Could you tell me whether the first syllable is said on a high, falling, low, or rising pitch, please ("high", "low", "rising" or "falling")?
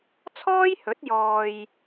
high